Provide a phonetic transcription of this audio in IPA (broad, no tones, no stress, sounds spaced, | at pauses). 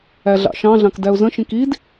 æ ɮ ɑ̰ ʃ ɑ̃ ɮ ɑ̃ k d æ ʊ̯ z ə̃ ʃ ĩ k i d